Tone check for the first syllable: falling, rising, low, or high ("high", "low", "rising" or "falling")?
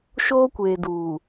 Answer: high